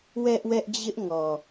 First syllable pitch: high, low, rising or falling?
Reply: high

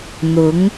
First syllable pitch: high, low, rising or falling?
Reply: rising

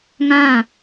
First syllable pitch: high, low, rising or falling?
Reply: falling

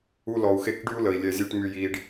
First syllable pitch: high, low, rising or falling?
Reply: high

